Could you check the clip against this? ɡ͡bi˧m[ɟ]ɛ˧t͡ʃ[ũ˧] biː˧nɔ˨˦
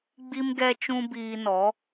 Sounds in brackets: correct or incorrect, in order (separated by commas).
incorrect, correct